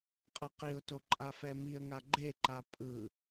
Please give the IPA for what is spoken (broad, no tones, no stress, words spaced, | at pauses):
qʼʌqiʊ̯to ǃʼafɛmiə̯ŋa ɡ͡ǃeǃa pʼɯ